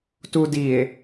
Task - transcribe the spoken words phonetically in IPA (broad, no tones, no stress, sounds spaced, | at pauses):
t u d i e̯